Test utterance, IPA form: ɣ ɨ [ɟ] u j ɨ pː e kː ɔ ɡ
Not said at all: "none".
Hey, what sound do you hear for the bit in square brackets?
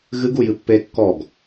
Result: ɡ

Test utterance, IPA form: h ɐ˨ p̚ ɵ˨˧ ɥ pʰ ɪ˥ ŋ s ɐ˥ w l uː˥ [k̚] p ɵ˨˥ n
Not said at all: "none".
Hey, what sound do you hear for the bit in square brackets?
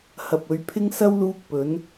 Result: k̚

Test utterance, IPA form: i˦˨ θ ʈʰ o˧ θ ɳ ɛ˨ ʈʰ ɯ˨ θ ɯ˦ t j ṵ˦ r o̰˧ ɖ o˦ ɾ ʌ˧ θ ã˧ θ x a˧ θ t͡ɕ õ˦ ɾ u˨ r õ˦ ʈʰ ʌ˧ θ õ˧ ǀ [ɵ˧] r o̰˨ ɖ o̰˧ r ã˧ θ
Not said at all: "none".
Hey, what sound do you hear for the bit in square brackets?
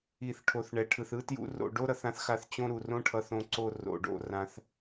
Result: o˧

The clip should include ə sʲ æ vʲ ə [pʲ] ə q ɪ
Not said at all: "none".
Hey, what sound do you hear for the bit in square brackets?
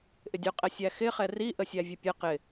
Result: pʲ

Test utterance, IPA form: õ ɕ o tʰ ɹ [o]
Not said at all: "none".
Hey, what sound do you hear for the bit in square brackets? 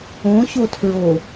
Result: o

